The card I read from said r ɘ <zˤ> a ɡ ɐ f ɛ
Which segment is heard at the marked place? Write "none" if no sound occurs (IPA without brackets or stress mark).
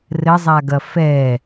zˤ